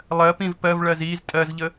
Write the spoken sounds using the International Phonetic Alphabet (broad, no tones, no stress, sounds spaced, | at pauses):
lˠ ɜ p ĩ v p ɜ v ɭ ɜ z i z tʼ ɜ z ʎ ə